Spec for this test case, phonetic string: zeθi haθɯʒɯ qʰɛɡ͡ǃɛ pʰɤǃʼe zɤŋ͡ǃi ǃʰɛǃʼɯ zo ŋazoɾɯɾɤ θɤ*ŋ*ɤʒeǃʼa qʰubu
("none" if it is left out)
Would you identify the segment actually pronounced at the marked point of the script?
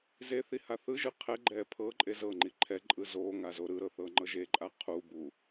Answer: ŋ͡ǃ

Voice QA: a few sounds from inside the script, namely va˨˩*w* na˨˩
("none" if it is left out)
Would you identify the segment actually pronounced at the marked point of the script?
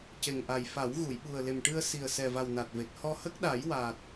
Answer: w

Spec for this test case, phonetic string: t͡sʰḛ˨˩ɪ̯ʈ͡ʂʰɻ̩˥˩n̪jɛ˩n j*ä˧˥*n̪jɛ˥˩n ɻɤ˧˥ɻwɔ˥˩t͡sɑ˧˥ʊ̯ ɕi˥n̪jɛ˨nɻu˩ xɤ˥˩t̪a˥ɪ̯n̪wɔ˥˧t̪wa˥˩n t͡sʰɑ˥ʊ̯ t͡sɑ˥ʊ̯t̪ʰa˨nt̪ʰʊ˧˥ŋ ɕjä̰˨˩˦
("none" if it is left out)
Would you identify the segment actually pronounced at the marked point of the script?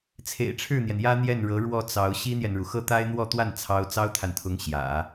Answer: ä˥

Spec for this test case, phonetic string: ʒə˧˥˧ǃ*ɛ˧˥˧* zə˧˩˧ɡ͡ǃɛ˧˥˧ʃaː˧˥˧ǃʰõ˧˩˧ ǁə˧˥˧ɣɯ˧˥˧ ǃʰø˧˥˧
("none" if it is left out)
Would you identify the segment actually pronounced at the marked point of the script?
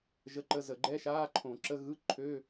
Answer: ə˧˥˧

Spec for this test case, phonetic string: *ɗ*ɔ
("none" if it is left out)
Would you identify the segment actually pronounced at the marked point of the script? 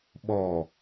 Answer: ɓ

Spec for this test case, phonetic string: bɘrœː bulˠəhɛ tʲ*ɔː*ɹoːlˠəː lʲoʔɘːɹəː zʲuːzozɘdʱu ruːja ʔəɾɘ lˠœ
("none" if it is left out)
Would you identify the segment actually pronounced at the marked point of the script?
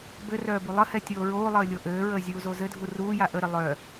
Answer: oː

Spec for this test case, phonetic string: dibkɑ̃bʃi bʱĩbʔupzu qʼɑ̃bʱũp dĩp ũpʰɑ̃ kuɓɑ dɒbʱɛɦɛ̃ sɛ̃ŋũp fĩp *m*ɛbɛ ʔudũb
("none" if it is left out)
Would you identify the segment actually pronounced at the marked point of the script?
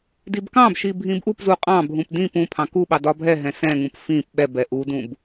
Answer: ɓ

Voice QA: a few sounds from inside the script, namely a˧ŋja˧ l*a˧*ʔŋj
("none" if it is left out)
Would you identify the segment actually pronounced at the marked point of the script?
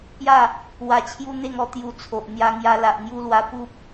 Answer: a˨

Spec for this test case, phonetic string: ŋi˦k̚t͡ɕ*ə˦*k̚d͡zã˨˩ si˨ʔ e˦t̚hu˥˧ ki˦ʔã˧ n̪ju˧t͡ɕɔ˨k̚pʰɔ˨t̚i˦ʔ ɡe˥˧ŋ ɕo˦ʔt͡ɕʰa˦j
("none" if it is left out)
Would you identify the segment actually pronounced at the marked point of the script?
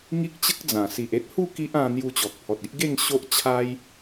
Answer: ə˦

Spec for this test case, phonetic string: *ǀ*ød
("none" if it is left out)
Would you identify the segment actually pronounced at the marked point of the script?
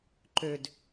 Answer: ǃ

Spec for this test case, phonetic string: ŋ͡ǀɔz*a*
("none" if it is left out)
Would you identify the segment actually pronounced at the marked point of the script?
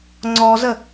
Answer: ə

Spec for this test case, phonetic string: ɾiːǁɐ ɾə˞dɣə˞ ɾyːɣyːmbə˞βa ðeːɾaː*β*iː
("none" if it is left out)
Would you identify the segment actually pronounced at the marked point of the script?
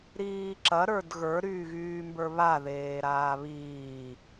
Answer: β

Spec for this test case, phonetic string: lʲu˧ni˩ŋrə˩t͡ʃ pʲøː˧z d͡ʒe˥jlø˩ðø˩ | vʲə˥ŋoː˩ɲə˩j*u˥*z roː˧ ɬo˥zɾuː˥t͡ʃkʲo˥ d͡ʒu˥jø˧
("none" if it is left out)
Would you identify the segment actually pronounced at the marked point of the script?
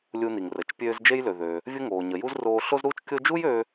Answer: u˥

